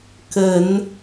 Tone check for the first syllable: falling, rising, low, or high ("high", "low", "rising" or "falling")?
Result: low